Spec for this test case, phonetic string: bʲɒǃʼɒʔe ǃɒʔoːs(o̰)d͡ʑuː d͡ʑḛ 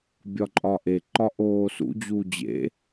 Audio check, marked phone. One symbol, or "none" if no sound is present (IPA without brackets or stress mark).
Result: ṵ